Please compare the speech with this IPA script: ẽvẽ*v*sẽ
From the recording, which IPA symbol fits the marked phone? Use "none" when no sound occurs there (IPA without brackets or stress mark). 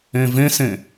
none